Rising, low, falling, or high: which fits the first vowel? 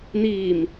low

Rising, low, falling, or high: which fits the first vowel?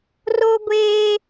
high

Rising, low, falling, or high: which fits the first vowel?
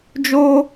high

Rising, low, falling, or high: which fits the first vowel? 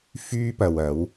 high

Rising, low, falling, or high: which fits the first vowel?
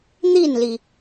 falling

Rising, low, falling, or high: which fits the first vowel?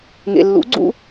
low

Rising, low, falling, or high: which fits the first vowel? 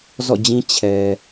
falling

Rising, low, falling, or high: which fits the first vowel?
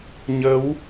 rising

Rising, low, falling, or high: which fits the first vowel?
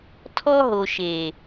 high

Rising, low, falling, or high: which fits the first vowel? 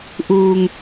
low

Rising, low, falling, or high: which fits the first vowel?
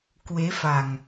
rising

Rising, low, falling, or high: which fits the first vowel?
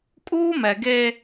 high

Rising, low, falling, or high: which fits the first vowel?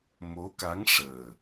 rising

